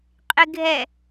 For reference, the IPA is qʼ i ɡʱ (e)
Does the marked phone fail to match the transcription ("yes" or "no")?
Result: yes